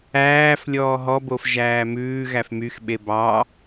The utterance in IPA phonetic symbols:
æːf lʲɔːɦɔbof ʒæːmʉːɣæf myxɓe bɑ

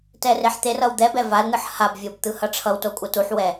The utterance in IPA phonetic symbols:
tɛreħt̪erʌw d̪ɛ bɛvaln̪ɯħ habvʲob t̪ɯhʌʈ͡ʂʰʌwto kʷʼʌtuħwɛ

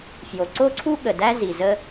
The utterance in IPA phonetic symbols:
fjo˩ǀo˥ǀʰu˥ɠə˩ dæ˥zi˩ zə˥

